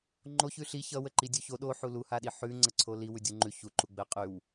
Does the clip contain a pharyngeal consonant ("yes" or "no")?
yes